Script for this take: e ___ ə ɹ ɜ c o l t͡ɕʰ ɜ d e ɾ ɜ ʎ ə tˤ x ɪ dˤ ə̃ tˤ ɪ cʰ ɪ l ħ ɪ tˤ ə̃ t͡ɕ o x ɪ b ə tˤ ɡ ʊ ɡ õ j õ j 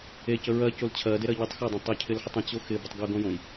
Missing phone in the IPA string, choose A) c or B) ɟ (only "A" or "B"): A